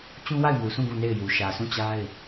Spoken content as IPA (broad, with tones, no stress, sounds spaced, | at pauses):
t͡ɕ ũ˦ w a˦˨ ɪ̯ m u˨ s ũ˦˨ ɡ ũ˦˨ n e˦˨ ɪ̯ j u˨ ʃ ä˨ sʰ ũ˦˨ t͡ɕ a˦ ɪ̯